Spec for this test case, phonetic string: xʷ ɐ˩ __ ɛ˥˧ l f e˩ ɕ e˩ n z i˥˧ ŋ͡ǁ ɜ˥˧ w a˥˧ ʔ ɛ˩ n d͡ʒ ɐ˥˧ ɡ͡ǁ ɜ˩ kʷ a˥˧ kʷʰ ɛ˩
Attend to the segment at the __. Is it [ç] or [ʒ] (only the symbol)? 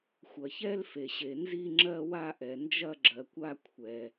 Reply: ç